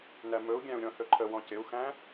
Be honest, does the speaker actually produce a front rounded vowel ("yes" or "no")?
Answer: no